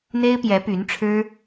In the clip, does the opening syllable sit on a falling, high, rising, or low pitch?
high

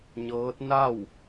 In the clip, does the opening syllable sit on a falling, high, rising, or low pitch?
rising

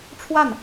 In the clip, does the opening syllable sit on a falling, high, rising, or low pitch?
falling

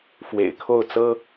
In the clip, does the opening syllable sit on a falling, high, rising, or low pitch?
low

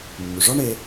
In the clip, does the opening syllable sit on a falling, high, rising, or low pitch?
low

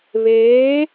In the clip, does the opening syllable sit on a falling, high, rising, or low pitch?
rising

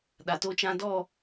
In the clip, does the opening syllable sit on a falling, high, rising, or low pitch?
low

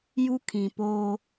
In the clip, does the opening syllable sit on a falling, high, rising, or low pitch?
high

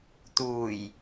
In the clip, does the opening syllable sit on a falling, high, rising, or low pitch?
low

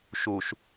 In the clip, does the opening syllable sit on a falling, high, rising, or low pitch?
low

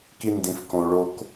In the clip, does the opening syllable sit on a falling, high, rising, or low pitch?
high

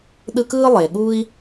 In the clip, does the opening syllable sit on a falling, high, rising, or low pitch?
high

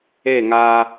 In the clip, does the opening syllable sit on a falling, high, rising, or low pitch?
falling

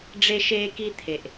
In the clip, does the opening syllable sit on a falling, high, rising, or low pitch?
high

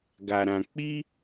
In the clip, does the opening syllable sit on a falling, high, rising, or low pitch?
low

